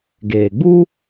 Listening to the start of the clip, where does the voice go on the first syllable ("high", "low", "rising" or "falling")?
low